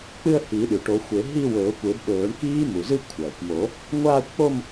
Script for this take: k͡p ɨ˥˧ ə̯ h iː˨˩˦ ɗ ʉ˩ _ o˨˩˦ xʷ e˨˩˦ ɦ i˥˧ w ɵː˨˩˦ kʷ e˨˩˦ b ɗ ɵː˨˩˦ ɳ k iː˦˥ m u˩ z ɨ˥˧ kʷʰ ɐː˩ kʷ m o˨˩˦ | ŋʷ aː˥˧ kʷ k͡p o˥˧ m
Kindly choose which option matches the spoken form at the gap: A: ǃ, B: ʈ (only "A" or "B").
B